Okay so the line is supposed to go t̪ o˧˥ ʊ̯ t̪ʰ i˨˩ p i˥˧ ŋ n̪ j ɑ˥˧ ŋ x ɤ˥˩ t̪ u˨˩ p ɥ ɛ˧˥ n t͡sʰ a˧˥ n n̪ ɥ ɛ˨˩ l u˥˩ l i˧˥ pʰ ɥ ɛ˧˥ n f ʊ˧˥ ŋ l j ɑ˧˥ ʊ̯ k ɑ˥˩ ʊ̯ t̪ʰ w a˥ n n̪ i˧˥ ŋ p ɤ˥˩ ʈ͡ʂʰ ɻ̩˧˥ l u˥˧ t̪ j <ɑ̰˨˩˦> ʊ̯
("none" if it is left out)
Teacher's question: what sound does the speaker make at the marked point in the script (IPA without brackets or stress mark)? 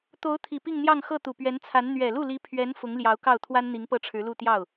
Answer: ɑ˥˩